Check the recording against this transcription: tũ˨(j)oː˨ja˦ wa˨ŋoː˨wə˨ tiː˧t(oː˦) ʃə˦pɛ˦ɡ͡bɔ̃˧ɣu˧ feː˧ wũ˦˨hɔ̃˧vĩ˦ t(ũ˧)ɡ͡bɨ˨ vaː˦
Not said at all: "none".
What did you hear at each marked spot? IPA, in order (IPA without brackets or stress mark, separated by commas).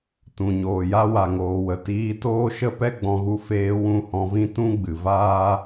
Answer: ɲ, oː˦, ũ˦